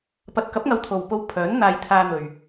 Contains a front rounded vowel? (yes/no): yes